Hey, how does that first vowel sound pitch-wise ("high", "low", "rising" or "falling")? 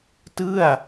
falling